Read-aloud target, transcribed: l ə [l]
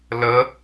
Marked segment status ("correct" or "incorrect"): incorrect